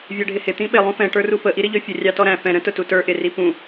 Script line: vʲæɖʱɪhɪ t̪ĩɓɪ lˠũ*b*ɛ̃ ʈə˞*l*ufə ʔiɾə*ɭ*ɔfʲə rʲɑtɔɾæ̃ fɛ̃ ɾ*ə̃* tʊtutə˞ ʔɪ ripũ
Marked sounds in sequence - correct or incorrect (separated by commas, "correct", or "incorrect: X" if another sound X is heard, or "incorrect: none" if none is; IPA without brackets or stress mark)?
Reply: incorrect: f, incorrect: r, incorrect: ʎ, correct